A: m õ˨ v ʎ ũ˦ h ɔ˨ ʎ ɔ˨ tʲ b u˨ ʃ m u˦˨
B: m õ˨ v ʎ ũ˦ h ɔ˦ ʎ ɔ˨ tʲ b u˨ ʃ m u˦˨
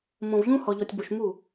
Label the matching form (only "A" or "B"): A